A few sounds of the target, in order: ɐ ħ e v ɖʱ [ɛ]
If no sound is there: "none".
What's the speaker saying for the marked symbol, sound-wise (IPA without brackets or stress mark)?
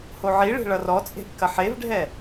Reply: ɛ